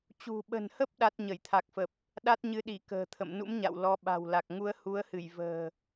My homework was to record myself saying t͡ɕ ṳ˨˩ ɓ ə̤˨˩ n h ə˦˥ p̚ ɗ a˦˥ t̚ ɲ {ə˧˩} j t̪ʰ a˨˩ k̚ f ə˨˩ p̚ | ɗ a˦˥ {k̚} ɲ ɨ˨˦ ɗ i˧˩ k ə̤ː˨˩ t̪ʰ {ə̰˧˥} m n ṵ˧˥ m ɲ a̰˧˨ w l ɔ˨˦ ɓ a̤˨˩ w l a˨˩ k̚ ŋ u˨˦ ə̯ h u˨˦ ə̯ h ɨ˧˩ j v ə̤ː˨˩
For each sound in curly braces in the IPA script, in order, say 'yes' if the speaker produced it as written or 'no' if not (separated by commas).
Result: yes, no, no